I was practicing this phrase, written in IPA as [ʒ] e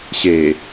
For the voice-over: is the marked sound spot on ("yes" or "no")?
no